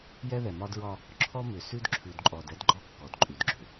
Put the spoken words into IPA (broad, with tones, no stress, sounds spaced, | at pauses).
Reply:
j ɛ˦ ð ɛ˨ m ɒ˦ d ɹ ɒ˦ | ǁʰ ɔ˦ m ʏ˨ s ʉ˦ d ǁʰ ʉ˨ d ǃʼ ɔ˨ d ɛ˦ d ɡ͡ǃ ɔ˦ kː ɔ˨ d ǃʼ ʉ˨ d ɡ͡ǁ ʏ˨